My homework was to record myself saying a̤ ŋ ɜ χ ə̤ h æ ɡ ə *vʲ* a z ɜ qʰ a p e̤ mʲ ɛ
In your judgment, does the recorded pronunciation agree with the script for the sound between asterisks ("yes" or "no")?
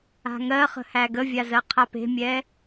yes